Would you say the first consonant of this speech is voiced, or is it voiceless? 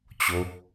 voiceless